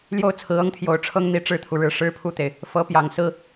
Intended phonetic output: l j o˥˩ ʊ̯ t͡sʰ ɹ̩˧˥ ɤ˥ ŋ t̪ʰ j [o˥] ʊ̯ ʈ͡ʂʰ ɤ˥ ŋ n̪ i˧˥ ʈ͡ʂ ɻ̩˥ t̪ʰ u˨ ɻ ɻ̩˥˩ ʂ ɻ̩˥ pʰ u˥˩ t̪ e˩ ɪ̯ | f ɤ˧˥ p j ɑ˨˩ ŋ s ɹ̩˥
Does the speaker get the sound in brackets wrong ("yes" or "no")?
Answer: yes